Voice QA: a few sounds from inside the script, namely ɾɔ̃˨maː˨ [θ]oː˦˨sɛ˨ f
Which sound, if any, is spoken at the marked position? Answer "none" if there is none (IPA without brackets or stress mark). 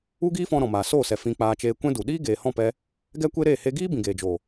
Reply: s